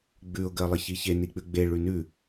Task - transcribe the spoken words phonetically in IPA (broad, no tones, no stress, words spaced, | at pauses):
ɡ͡bʉʊ̯ ɡɜlˠəçiçe nik͡pʉɡ͡be ɭʉnʉ